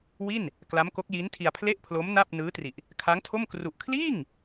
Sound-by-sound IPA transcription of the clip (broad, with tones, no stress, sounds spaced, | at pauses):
w i˥˩ n | k l a˦˥ m k o˦˥ k̚ j i˦˥ n tʰ i˧ a̯ pʰ l e˥˩ ʔ pʰ l o˦˥ m n a˥˩ p̚ n ɯː˦˥ t r i˨˩ ʔ | kʰ a˦˥ ŋ tʰ o˥˩ m k r u˨˩ ʔ kʰ l iː˥˩ ŋ